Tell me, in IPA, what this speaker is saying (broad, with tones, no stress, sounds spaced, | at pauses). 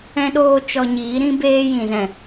ɛ̃˦ ɗ oː˦ t͡ʃ ɔ˧ ɲ iː˨˦ ɾ ĩ˦ b eː˦ j ĩ˨ z ɛ̃˨